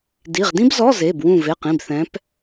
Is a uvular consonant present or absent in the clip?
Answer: present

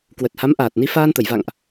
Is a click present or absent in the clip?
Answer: absent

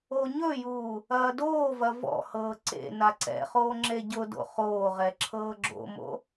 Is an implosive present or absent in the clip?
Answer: absent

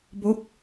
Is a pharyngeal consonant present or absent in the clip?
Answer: absent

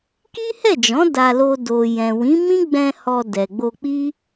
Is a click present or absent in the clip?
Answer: absent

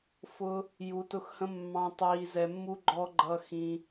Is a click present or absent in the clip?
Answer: present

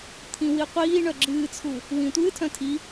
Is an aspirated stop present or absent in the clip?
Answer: present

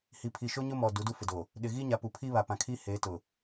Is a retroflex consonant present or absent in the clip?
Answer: absent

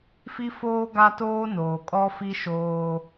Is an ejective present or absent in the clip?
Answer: present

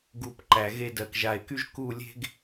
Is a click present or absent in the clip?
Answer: present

